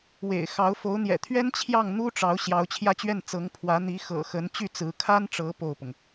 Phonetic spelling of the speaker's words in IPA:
w ḛ˨˩ ɪ̯ x ɑ˧˥ ʊ̯ f o˧˥ ʊ̯ n̪ j ɛ̰˨˩ t̪ʰ ɥ ɛ˥ n t͡ɕʰ j ɑ˥˩ ŋ n̪ u˥ ʈ͡ʂ ɑ˧˥ ʊ̯ ɕ j ɑ˧˥ ʊ̯ t͡ɕʰ j ä˥˧ t͡ɕ ɥ ɛ˥˩ n t͡s ɤ˧˥ ŋ pʰ w ä˧˥ n̪ i˧˥ x ɤ̰˨˩ x ə˧˥ n t͡ɕ y˥˩ t͡s ɹ̩˧˥ kʰ a˥ n ʈ͡ʂ ɤ˧˥ p o˥˩ ʊ̯ p ʊ˩ ŋ

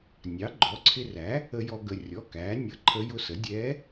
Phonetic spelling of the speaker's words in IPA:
nʲ ɑ˩˥ ɡ͡ǃ ɔ˩˥ ǀʰ ɪ˧ r æ˩˥ | ə˧ j ɔ˧ ɡ ə˩˧˩ rʲ ɔ˩˧˩ k æː˩˥ nʲ ʌ˧˥ ǃʰ ə˧˥ j ʊ˧ s ə˩˥ dʲ ɛː˧˥

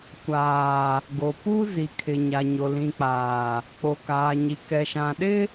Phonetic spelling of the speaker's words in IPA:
kʷ aː˨ | ɡ o˨ p u˦ z i˨ kʰ ɪ˨ ɲ a˨ ɲ o˨ l ĩ˨ k͡p aː˨ | k͡p o˨ k aː˨ ɲ i˨ k ɛ˨ ʃ ã˨ ɗ ɪ˦

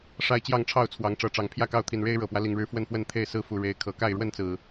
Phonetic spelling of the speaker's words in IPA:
ʂ a˦ ɪ̯ t͡ɕ j ɑ˥˨ ŋ ʈ͡ʂʰ ɑ˥˨ ʊ̯ t͡sʰ w ɑ˨˦ ŋ ʈ͡ʂ ɤ˨˦ ʈ͡ʂ ɑ˨˦ ŋ pʰ j ä˥˨ k ɑ˥˨ ʊ̯ t̪ʰ i˨˩ n ɻ e˦ ɪ̯ ɻ ɤ˨˩ p w ä˦ l i˨˩ ŋ ɻ ɻ̩˥˨ f w ə˥˨ n f w ə˥˨ n t̪ʰ e˥˨ ɪ̯ s ɹ̩˦ f u˨˩ ɻ e˨˦ ɪ̯ kʰ ɤ˨˩ k a˥˨ ɪ̯ ɻ w ə˥˨ n t͡s ɹ̩˨˩

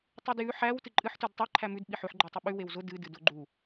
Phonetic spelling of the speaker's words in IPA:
tˤ ʉ d j ʉ ħ æ w t ɨ ǃʼ ɨ ħ t ʉ d tˤ æ ǃʰ æ m ʉ d ɓ i ħ ʉ ħ ɡ͡ǃ æ tˤ ɨ ɓ ʉ w e w z ʊ d ɨ d ɨ d ʊ ɡ͡ǃ u

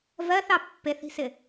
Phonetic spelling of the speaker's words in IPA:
v ɜ θ ɑ pː e θ i̤ s ɪ

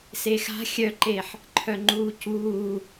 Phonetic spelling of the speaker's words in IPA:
s e x a̤ xʲ œ ǃ e ħ | ǃʰ œ ŋ͡ǃ uː c uː

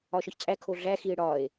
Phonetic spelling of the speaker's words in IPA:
ɒ ʃ ɒ ç t͡sʼ æ kʰ o ɮ æ x i e̯ ɽ ɒ e̯

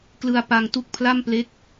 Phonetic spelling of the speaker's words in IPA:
k l ɯ˧ a̯ p a˧ ŋ t u˦˥ k̚ pʰ l a˥˩ m p l e˦˥ k̚

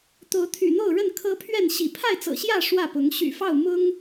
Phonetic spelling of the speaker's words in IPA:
t̪ o˨˦ ʊ̯ t̪ʰ y̰˨˩ n̪ o˥˨ ʊ̯ ɻ ə˥˨ n kʰ ɤ˦ pʰ ɥ ɛ˥˨ n ɕ ḭ˨˩ pʰ a˥˨ ɪ̯ t͡s ɤ̰˨˩ ɕ j ä˥˨ ʂ w ä˥˨ p ʊ˨˦ ŋ ɕ y̰˨˩ f ɑ˥˨ ʊ̯ m ʊ˦ ŋ

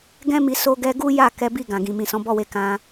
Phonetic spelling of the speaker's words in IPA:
ɡ ɛ̃˦ m i˧ s o˦ ɡ ɛ˦ ɡ u˦ j a˦˨ k ɛ˨˦ b i˦˨ ɡ ã˨ ɡ ĩ˨ m ĩ˨ s ɔ̃˨˦ b ɔ˦˨ w e˧ k ã˧

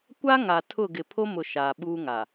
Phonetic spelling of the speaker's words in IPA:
kʷ a˦ ŋ a˨ tʰ ʊ˦˨ ɡ ɪ˨ pʰ o˦ m ʊ˨ ʃ aː˨ ɓ uː˦ ŋ a˨

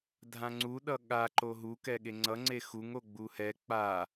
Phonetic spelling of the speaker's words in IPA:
dʱ ã ŋ͡ǀ u ɗ ʌ ɠ a ǃ o ɦ u k ɛ ɠ e ŋ͡ǀ ʌ ŋ͡ǀ e x u ŋ o ɡ͡b u h ɛ k͡p a

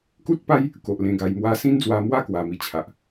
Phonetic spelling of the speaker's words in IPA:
k u˦ t̚ p a˦ j | k o˨ ʔ l ẽ˧ ɡ a˧ j m w a˦ s ĩ˦ n d͡z w a˧ m w a˥˧ k w a˧ m i˧ t͡ɕʰ a˨ ʔ

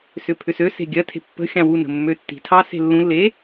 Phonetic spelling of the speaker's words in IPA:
s ʏ pʰ ʏ s ø s e̤ ɡʲ ɜ tʰ e̤ pː ə̤ xʲ ɑ̃ w u n ə̤ mː ø tː i̤ tʰ ɑ s e̤ lː ũ lː e

